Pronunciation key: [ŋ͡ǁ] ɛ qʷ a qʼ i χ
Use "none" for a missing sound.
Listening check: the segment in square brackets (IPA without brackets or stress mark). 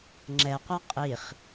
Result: ŋ͡ǁ